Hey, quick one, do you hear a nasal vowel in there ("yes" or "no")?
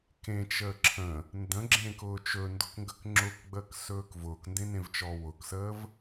yes